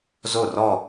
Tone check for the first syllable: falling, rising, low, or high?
falling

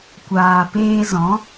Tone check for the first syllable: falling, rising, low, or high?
low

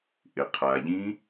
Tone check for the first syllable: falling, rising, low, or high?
low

